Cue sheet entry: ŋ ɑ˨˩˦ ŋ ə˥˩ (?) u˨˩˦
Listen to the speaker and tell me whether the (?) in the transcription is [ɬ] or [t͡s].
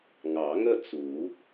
t͡s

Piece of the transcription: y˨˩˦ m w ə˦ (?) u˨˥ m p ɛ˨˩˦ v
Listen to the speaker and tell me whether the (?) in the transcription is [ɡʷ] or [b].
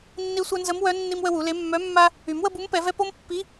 b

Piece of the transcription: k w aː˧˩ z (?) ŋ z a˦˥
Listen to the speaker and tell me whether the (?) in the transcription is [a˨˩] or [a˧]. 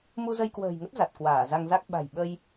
a˧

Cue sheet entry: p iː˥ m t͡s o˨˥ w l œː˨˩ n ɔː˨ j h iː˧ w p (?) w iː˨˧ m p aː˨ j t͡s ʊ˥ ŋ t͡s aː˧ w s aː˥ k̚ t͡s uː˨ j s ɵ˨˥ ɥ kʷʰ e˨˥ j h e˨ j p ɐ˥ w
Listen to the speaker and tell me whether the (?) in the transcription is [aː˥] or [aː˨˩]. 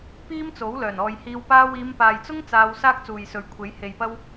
aː˥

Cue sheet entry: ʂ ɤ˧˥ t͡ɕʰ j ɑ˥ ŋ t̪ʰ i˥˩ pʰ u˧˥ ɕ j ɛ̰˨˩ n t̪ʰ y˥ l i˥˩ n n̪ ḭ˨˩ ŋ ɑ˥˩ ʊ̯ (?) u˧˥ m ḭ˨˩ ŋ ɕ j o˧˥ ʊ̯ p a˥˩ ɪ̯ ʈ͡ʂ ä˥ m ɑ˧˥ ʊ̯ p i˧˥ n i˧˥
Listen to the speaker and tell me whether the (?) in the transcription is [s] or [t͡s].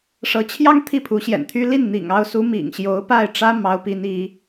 s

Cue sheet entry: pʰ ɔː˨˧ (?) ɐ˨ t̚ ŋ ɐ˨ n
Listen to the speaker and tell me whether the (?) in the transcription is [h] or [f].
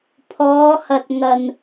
h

